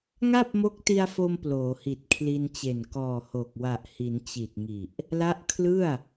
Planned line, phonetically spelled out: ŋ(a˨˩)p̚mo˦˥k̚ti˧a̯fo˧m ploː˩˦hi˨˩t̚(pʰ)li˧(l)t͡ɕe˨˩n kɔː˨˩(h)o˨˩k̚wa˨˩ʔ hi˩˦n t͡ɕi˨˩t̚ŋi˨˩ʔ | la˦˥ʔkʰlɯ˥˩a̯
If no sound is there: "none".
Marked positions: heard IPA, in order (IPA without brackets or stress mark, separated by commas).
a˥˩, kʰ, n, h